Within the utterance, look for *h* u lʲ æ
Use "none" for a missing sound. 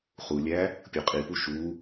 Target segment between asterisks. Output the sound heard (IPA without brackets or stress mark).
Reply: χ